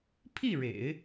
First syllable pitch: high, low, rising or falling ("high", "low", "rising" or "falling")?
falling